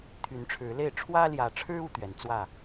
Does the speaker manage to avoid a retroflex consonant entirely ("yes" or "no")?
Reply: no